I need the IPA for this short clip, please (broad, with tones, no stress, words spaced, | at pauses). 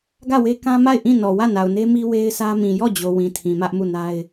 ɡä˦˨we˦kã˦ ma˦˨ɪ̯ʔĩ˦˨ nɔ˨wä˦˨na˨ʊ̯ne˦ mi˦we˦ɪ̯sʰä˦ mĩ˨jɔ˦˨d͡ʑo˨ wĩ˨tʰĩ˨ mä˦ʔmu˦˨na˦ɪ̯